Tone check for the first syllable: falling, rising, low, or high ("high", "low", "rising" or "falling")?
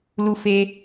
high